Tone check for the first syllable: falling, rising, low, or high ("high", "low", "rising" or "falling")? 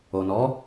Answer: low